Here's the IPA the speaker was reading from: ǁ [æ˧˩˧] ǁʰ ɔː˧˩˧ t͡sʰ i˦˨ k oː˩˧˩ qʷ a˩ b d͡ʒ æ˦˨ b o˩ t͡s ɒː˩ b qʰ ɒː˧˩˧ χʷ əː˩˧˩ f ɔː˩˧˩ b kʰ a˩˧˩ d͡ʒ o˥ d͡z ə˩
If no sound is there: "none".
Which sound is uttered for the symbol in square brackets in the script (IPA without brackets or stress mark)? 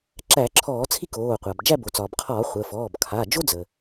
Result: æ˧˩˧